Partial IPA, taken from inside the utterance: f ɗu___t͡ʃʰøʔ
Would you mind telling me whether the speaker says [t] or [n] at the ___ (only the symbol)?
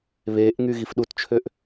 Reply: t